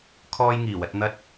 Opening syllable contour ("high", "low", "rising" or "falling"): high